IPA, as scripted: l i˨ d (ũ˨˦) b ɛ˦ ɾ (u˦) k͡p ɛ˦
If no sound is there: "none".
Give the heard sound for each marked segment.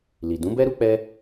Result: ũ˨˦, u˦

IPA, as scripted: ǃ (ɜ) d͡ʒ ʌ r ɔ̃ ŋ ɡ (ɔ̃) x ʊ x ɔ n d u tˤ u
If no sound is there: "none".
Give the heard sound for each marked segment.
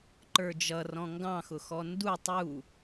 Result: ə˞, ɑ̃

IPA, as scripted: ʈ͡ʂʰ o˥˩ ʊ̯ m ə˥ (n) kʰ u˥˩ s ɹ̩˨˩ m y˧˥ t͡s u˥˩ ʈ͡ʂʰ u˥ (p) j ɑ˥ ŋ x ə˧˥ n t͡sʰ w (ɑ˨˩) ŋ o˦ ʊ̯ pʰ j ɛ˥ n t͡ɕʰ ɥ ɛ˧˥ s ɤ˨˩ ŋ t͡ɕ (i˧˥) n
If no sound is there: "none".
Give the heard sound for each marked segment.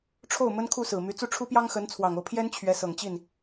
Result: n, p, ɑ˨˩, i˥˩

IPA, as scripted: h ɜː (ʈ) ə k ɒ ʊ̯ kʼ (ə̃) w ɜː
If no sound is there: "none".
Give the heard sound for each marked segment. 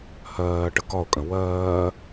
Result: ʈ, ə̃

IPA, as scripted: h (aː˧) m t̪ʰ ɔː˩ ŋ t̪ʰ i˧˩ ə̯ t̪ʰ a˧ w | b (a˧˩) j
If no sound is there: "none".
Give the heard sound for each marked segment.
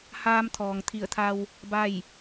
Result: aː˧, a˥˨

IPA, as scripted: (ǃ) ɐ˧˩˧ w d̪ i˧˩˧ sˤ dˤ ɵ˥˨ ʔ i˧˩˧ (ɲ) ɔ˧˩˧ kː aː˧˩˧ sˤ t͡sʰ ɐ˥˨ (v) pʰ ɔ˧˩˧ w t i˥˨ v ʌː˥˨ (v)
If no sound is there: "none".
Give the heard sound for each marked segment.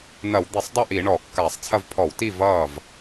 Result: n̪, ɳ, v, v

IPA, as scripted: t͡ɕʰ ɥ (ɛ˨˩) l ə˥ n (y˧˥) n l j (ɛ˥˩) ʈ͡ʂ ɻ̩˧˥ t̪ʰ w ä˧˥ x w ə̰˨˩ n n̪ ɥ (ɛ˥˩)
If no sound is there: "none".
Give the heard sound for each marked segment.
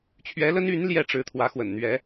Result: ɛ˧˥, y˧˥, ɛ˥˩, ɛ˧˥

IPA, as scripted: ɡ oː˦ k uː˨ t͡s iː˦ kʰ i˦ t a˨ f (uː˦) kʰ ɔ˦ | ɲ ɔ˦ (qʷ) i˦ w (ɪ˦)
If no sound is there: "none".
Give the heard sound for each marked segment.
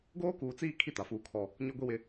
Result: uː˦, ɡʷ, ɪ˦

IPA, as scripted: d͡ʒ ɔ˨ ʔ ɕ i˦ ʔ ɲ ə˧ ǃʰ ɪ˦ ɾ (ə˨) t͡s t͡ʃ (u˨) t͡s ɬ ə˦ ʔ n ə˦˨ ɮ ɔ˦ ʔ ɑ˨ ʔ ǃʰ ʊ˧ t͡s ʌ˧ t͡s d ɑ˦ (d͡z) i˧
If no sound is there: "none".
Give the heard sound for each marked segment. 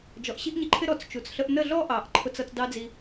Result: ɔ˨, u˨, d͡z

